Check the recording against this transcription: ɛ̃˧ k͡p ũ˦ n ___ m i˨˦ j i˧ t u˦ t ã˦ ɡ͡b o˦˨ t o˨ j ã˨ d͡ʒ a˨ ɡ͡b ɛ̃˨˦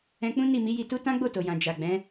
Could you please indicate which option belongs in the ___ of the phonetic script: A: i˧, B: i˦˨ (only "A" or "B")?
B